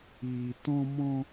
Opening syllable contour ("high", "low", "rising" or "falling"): low